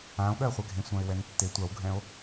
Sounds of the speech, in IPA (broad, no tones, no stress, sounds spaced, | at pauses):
ã o̯ ɠ ɜ χʷ ɛ ɡʱ ẽ sʷ ã e̯ w ɛ n tː e tʷ a w ɡʱ ɛ̃ o̯